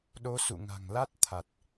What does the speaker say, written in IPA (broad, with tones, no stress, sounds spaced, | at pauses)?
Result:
ɗ o˨˦ s ṵ˧˨ ŋ a̤˨˩ ŋ l a˦˥ t̚ t̪ʰ a˨˩ t̚